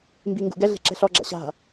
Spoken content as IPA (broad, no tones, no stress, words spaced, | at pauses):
mbiŋɡṵɡɛɮe̤ ǁɛ̤ɬɔɡ͡ǁa̰ ɕa̤